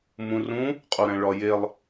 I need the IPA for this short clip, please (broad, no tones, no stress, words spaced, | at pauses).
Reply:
mũrũ | qʼuɾæ̃ɭɒjelˠ